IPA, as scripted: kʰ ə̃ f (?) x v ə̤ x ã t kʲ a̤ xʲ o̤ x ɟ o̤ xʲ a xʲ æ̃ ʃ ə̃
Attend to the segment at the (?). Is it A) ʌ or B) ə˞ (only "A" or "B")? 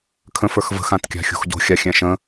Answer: B